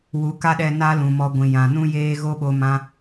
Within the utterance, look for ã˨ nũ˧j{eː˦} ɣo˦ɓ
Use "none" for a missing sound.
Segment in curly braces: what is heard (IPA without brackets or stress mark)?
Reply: eː˧